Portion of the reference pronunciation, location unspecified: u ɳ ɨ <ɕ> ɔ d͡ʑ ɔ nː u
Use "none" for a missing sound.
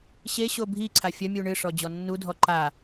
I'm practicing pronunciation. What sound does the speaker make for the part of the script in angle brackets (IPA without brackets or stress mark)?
ʂ